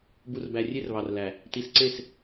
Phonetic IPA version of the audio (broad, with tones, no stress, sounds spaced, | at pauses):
b u˨ r b æ˨ rʲ e˦ r β ɑ˨ r l æ˨ | t i˨ s ǀ e˦˨ s